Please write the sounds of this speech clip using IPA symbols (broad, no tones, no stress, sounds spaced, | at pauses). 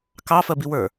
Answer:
k ɑ f ɜ b i w ə˞